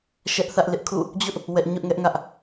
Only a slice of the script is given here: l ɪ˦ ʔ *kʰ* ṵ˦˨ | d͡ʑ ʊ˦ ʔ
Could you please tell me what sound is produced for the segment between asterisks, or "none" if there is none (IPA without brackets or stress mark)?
kʰ